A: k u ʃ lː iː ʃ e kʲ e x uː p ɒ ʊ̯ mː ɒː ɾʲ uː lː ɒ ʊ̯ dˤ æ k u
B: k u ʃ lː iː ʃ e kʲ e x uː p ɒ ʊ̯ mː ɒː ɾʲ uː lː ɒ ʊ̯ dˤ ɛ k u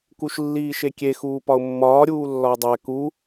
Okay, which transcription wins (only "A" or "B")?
A